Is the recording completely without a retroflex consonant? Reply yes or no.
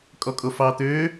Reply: yes